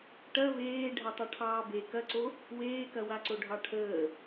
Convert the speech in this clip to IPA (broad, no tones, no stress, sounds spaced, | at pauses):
ʈ ɐ v eː ɖʱ ɐ tˤ ɐ ʈʰ ɑː b e k ɐ ǀ o | w eː k ɐ w a ǀ o ɖʱ ɑ ʈʰ əː